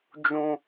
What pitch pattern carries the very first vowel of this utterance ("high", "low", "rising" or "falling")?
low